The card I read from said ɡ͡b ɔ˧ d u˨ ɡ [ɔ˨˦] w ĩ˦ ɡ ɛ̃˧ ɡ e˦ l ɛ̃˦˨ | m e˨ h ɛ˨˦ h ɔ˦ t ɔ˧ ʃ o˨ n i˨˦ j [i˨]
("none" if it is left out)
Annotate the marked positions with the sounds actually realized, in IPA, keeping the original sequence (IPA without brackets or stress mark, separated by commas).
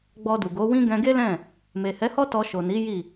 o˨˦, i˦˨